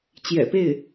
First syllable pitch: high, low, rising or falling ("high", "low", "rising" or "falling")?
low